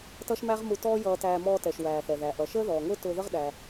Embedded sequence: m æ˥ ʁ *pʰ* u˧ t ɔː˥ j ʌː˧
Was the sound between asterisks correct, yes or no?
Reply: no